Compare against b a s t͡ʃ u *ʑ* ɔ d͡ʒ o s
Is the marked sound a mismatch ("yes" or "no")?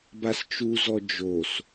yes